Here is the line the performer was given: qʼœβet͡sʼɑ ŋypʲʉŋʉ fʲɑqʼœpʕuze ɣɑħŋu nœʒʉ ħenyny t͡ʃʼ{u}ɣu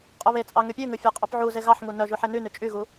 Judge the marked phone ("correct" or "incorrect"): incorrect